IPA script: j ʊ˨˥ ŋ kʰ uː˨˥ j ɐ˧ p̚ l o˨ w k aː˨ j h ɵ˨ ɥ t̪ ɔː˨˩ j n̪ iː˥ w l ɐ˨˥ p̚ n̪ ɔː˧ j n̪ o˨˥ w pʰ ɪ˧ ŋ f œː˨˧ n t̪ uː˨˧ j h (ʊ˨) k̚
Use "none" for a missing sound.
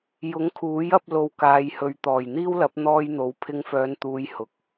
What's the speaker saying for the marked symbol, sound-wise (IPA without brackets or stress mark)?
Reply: ʊ˨